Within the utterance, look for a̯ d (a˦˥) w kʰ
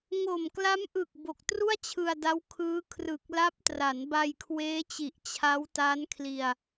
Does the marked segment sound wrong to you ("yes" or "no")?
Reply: no